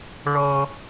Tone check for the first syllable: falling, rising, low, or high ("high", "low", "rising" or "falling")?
high